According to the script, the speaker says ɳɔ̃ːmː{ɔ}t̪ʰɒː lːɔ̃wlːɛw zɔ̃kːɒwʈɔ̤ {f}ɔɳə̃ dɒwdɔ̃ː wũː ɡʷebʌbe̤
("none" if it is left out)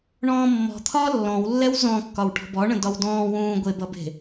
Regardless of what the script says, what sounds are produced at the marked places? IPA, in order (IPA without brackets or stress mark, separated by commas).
ɔ̤, b